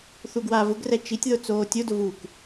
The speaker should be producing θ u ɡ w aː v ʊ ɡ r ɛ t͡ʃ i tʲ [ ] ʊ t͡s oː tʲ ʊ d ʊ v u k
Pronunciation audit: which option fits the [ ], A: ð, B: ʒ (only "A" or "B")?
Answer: A